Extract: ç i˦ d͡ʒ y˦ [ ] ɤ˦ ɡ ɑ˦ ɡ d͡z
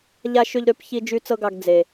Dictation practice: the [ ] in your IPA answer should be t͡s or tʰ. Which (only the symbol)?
t͡s